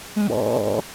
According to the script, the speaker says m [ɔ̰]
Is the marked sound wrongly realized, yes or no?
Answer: no